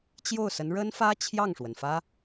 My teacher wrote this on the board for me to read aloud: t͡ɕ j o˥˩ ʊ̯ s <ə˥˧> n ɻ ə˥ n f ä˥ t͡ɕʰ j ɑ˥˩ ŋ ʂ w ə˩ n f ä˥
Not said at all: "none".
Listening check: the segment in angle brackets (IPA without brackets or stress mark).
ə˧˥